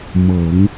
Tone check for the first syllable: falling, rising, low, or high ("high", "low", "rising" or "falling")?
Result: low